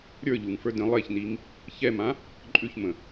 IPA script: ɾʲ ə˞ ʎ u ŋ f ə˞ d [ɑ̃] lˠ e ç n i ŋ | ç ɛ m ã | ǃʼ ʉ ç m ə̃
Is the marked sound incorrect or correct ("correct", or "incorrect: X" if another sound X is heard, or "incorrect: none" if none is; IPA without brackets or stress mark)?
incorrect: ə̃